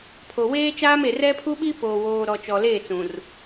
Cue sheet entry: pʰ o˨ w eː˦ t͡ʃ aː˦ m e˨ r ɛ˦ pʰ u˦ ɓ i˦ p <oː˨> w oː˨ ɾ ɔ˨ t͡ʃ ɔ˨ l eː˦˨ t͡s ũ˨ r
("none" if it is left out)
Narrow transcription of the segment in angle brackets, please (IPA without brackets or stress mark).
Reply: oː˨